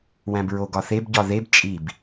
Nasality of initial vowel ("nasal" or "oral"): nasal